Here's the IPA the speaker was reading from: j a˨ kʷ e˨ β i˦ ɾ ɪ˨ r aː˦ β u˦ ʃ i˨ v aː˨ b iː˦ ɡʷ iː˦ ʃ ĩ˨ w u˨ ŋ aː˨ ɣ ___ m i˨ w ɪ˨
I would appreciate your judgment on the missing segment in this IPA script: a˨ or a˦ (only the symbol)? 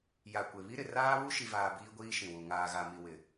a˨